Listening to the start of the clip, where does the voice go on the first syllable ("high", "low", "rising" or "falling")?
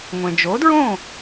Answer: low